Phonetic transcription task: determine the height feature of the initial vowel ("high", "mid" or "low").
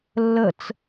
mid